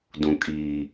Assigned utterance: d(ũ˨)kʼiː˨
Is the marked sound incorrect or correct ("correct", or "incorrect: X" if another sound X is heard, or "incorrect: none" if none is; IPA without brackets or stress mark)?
correct